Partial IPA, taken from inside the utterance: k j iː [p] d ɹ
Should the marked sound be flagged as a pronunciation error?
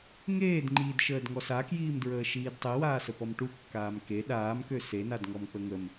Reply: yes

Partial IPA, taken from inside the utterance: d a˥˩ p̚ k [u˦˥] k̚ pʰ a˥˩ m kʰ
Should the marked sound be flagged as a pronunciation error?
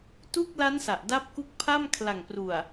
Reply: yes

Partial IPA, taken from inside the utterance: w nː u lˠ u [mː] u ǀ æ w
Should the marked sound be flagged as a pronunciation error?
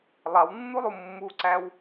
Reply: no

